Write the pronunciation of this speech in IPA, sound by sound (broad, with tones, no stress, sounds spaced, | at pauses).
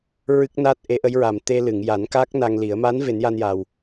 ɹ ɨ˦˥ k̚ n a˦˥ t̚ ʔ e˧˥ ʔ ə˧˥ j ɹ a˨˩ m t̪ e˧ l ɨ˨˩˨ ŋ j a˨˩˦ n k a˦˥ k̚ n a˧ ŋ l i˨˩˦ ə̯ m a˧˥ n v e˨˩˦ n j a˧ n j a˨˩ w